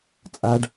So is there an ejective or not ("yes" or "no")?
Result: yes